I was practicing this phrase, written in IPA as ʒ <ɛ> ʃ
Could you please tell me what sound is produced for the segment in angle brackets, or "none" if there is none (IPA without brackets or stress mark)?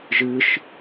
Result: ɨ